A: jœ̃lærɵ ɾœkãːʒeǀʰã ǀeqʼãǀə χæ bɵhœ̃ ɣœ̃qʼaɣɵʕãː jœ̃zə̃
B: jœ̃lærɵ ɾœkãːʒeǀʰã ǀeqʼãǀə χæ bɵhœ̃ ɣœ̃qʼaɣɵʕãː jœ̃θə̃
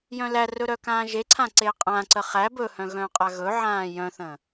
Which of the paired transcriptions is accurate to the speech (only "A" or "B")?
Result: B